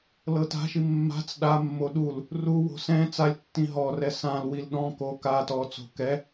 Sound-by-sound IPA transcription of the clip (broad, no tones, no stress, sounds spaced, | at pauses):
l ɤ t a̤ ʃ i mː a̤ t͡s ɗ a mː o ɗ u l | r u w o̤ s ɛ̃ t͡s a lʲ tː ĩ ɦ ɔ r ɛ s ã l w i l ɗ ɔ̃ k o k a t ɔ t͡s o̤ k ɛ